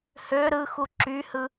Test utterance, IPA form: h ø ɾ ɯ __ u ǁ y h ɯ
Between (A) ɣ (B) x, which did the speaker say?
B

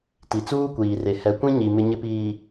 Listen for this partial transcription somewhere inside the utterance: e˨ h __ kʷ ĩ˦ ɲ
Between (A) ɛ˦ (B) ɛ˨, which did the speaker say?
B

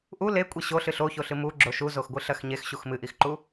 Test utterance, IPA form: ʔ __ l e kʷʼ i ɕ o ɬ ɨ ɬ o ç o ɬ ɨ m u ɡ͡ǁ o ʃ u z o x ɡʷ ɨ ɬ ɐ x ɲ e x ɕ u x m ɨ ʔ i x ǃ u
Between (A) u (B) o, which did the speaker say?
A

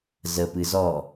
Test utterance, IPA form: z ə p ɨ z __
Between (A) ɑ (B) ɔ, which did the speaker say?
B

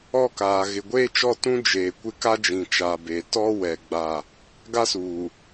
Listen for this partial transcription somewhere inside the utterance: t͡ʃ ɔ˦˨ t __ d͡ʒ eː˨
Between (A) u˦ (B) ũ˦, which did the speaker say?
B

